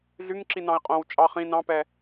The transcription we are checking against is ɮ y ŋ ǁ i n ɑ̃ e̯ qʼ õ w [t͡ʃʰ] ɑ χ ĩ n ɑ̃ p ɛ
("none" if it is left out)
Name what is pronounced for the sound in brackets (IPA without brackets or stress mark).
t͡ʃʼ